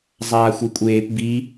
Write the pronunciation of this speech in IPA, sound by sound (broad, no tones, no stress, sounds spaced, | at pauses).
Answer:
zˤ aː xʷ i kʷʼ eː p b i